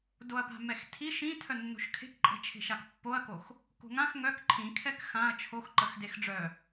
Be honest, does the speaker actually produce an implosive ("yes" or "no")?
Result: no